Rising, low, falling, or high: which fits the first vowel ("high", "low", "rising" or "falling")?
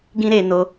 high